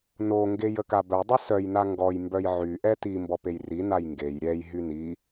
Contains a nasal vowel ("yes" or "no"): no